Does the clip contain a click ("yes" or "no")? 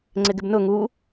yes